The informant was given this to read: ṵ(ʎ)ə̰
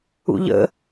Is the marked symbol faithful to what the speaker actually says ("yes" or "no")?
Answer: yes